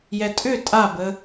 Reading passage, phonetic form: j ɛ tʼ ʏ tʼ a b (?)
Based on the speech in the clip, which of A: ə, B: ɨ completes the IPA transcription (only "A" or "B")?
A